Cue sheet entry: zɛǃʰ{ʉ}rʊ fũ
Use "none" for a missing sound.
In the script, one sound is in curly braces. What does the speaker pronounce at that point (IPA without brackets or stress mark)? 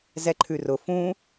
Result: ʉ